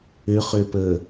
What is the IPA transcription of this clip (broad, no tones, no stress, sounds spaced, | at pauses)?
ʏ χ ʏ p ə